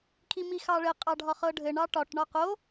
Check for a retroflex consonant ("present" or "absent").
present